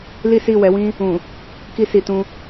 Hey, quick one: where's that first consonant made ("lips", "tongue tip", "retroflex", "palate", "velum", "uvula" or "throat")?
tongue tip